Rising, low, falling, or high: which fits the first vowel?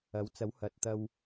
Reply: rising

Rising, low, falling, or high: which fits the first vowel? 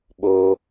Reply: low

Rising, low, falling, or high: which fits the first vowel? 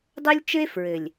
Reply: high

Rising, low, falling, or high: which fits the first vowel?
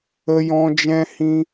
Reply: high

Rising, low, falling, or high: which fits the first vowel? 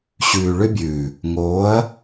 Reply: low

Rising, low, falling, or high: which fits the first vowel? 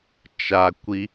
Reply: low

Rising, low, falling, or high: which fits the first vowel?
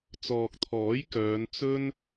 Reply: low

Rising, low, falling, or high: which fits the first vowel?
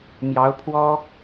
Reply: rising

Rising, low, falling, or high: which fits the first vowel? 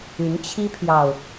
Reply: rising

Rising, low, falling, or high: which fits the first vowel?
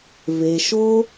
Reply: low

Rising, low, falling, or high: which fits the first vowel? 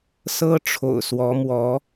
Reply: high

